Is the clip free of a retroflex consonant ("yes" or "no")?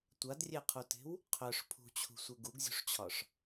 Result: no